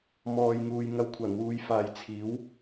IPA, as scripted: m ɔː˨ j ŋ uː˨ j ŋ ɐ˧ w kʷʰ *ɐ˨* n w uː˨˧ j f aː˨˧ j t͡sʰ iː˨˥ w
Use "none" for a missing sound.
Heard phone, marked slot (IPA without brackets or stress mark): ɐ˨˩